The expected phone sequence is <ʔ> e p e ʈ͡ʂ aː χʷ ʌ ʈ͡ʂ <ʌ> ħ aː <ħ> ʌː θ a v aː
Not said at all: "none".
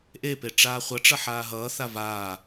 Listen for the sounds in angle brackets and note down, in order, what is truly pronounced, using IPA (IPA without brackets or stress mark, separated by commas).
ʔ, ʌ, ɦ